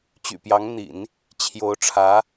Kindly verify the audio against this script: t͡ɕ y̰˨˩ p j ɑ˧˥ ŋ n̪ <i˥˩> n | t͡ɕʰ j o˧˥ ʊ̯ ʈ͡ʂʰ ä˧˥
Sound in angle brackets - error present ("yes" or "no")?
yes